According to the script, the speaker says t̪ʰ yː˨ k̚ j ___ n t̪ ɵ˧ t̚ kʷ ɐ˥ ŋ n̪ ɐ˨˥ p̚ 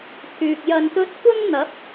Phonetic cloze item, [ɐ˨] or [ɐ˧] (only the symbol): ɐ˨